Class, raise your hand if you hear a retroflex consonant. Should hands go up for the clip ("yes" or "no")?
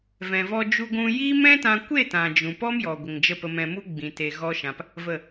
no